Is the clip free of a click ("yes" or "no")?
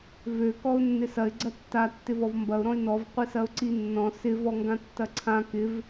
no